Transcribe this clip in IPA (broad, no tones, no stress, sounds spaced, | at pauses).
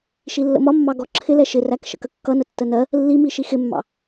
ʃ i lː ə̰ m ɒ mː ɑ ɡ ɔ ǁʰ ɪ l ɛ ʃ ɪ r æ k ʃ ə̰ k ə kː ʌ n ə tː ə n ɜ | lː i m i ʃ i x ɪ mː ɑ̰